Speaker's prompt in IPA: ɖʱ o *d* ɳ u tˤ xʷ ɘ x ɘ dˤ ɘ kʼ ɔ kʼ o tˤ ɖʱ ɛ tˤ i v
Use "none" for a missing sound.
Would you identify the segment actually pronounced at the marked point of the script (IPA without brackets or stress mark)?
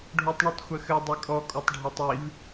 tˤ